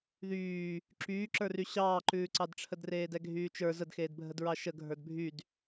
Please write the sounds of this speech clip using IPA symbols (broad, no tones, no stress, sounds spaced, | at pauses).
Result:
ð yː | ǁ yː ǁ ə˞ r y ɕ ɑː ǃ ʉː ǀ ɑ d ʈ͡ʂʰ ə d r eː d ɛ ɡʱ yː t͡ʃ ə˞ z ə d x eː d bʱ ə d ɹ ɑ ʃ ə ɡʱ ə˞ d bʱ y d